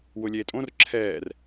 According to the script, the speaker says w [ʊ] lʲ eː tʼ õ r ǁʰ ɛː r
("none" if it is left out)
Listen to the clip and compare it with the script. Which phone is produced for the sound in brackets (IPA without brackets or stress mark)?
ʊ